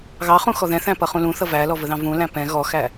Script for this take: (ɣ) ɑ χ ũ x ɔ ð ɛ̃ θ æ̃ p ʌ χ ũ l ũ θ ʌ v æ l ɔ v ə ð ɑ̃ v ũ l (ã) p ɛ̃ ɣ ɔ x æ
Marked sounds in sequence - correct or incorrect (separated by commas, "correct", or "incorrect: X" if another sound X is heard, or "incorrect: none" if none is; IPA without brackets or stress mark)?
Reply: correct, incorrect: æ̃